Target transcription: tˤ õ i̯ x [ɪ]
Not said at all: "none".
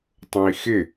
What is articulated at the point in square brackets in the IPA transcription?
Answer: ɪ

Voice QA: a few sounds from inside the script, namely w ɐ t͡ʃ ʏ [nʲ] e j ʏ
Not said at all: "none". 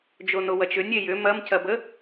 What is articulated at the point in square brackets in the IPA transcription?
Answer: nʲ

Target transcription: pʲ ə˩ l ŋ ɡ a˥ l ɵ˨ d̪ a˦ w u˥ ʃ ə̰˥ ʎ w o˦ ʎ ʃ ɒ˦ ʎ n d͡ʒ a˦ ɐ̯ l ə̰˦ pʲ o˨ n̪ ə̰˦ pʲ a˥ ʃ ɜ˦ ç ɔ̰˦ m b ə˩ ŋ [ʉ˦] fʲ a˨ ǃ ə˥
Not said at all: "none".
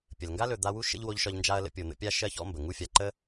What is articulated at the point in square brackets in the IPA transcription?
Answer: u˦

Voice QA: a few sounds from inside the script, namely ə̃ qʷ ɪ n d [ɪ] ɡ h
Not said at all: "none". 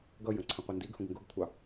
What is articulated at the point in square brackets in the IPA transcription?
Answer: i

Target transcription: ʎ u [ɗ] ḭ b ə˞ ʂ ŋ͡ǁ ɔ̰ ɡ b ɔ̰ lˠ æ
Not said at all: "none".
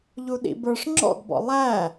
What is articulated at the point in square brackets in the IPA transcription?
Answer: ɗ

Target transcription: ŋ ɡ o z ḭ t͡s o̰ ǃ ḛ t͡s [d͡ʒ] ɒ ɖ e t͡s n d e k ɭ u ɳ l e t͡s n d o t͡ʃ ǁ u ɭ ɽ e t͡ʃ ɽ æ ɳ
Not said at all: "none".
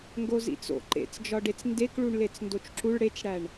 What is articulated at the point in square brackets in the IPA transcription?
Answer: d͡ʒ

